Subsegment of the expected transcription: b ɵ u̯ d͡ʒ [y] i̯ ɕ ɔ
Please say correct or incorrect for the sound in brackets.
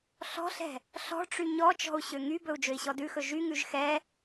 incorrect